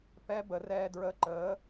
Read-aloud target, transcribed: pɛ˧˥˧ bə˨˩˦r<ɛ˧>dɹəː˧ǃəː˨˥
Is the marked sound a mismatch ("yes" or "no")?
yes